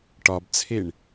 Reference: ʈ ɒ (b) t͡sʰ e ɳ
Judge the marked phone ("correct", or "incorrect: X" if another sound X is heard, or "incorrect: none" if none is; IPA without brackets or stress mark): correct